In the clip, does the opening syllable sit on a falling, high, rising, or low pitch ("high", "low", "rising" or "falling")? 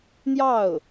falling